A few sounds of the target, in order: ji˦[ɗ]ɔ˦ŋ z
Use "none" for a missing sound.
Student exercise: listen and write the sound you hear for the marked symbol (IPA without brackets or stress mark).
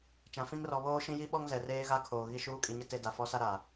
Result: ɓ